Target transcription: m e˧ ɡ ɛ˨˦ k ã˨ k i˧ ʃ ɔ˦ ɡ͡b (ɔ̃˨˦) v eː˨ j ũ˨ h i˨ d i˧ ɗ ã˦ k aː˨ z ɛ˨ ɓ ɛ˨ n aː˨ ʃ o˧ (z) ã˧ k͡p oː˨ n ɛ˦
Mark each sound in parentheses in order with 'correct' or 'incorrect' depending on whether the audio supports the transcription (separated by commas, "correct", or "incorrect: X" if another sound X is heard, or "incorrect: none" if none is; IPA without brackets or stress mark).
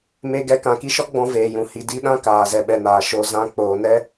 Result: incorrect: ɔ̃˦, correct